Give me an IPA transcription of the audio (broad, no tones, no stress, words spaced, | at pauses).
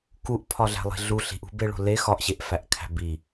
kuʔpʰɒɮæ̤lˠi̤ ɮu ɬi̤ʔṳbeɭo̤ le xɒʔɕeʔfæʔkʰæ̤ bi